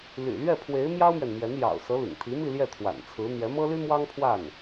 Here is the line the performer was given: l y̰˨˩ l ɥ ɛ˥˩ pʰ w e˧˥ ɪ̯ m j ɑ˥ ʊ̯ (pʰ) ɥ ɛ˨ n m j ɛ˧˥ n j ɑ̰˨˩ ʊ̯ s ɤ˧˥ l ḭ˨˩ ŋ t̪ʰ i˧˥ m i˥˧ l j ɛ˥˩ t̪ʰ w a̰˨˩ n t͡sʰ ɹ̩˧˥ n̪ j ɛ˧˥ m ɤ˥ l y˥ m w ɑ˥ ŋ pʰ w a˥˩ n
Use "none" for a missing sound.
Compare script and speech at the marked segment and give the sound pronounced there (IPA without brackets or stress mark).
m